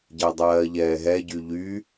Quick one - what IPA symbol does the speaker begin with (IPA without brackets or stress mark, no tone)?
ɟ